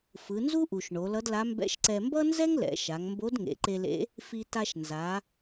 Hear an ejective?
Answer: no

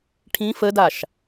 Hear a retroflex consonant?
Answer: yes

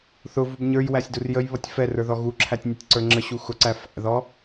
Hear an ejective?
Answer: no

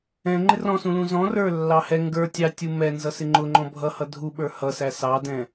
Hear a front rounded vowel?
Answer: no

